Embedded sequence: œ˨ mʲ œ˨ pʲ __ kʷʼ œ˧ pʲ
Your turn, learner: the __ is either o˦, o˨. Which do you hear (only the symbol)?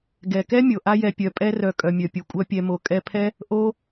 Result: o˨